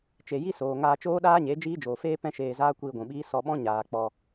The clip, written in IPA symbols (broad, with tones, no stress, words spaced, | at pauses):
t͡ʃe˨ji˦soː˨ ŋaː˧t͡ʃoː˦ɗaː˦ɲe˨˦ d͡ʒiː˦d͡ʒoː˨feː˦ pɛ̃˦ʃeː˧ zaː˦ kʷiː˧ɡʷũ˨ɓiː˦ sɔ˧ɓɔ̃˦ ɲaː˧k͡pɔ˧